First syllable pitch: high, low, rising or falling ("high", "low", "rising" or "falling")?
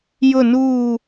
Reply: falling